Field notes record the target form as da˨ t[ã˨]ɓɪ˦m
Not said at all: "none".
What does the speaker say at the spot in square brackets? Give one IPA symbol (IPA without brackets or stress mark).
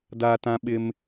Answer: ã˦